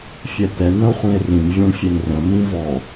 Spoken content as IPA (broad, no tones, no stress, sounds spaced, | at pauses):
fʲ ɛ t̪ ɛ n̪ ə̃ o̯ χʷ ĩ e̯ r ĩ m vʲ ɔ̃ ɳ fʲ e n r ə̃ m ĩ v ɔ